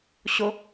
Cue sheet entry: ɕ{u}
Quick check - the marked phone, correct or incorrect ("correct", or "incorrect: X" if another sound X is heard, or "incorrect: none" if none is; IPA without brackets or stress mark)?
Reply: incorrect: o